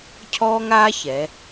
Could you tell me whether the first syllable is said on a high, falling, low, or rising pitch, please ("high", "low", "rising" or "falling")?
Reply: high